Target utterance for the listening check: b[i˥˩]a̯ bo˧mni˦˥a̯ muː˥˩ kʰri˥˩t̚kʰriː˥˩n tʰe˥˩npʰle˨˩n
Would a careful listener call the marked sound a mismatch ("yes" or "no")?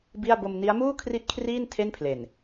no